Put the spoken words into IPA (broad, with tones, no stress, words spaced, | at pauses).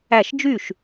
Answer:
æ˥˩ʃ d͡ʒy˥˩ʃ